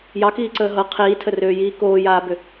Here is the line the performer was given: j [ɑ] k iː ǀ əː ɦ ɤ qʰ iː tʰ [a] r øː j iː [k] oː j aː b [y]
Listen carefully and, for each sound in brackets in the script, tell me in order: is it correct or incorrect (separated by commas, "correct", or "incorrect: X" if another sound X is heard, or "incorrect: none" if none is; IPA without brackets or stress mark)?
correct, incorrect: ə, correct, incorrect: ʏ